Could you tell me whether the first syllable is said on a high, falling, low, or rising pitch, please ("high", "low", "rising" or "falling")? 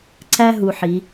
high